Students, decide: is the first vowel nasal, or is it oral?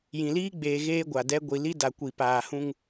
nasal